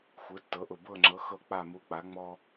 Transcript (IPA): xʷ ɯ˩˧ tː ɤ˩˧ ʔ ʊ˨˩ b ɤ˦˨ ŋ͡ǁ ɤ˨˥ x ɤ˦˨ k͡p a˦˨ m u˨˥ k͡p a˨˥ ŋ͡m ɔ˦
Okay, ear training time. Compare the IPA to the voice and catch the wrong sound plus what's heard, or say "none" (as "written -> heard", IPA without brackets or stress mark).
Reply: none